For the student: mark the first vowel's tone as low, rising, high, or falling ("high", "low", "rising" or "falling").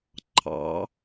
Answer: rising